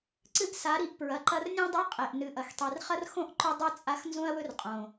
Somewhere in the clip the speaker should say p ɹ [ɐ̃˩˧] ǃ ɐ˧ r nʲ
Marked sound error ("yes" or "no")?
yes